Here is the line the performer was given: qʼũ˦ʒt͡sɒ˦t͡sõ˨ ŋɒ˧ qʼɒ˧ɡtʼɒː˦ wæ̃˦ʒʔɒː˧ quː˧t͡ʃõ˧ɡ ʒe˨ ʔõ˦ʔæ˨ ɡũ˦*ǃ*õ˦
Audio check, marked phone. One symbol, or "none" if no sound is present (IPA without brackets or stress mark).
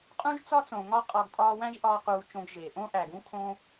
kʰ